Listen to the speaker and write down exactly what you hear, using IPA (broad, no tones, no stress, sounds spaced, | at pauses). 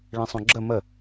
ɭ ẽ sˤ õ ɡ͡ǁ ə m ə